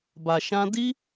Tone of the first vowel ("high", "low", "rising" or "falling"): low